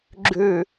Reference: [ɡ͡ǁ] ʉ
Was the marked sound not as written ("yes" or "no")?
no